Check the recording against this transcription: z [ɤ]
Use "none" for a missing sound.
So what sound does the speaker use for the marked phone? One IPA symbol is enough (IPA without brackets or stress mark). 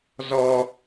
ɔ